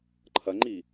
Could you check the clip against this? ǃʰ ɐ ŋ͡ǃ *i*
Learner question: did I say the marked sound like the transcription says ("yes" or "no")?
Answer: yes